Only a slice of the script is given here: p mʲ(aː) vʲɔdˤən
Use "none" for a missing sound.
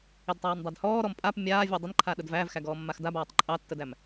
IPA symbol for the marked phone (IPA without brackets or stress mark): aː